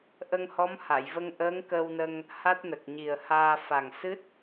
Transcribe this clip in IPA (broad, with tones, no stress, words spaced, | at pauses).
ʔə˧ŋhɔ˧˥mha˨˩˨jvə˧ŋ ʔəː˧˥ŋkə˧wnə˧ŋ | ha˦˥t̚nə˨˩k̚ɲi˨˩ə̯haː˧ fa˨˩ŋsɨ˦˥t̚